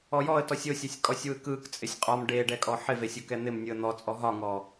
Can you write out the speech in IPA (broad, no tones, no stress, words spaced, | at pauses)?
ɔjɔə̯ tɔsʲosʲesʲ kʼɔsʲwɯkɯk t͡sʼɪsʲqʼɒm ɖeɖɛkʼɔ ħɪve sʲokɛn̪ɪm nʲɯə̯n̪ɔt͡sʼɔ ɦɒŋɔ